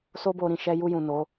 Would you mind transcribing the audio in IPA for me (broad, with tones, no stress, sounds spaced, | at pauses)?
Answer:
s o˦ b o˧ ɾ ĩ˨ ʃ ɛ˧ j u˧ j ũ˨ n o˨˦